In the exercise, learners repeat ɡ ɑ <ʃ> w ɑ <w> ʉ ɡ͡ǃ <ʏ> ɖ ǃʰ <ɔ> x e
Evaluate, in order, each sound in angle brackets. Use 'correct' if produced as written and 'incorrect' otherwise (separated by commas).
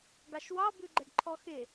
correct, incorrect, incorrect, correct